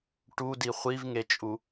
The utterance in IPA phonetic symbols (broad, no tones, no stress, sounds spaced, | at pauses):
ʈ u d i χʷ i v ŋ e t͡ʃʼ u